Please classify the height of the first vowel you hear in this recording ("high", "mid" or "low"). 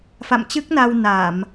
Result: low